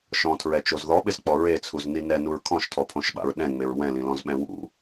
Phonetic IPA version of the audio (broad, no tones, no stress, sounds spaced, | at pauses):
ʃ ɔ̃ tʰ ɹ ɛ t͡ʃ o z ð ɔ ɓ ɪ z k͡p ɔ ɹ e t͡sʰ u z n i n ɛ n u ɹ kʰ ɔ̃ ʃ tʰ ɔ pʰ õ ʃ ɓ a̰ ɹ ɗ ɛ̃ ŋ͡m e ɹ w ɛ̃ l ĩ l ɔ̃ z ɓ ɛ̃ w ṵ